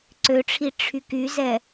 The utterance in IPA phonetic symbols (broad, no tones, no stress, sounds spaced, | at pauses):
ǀ ø ʈ͡ʂʰ i ʈ͡ʂʰ y k y z ɛ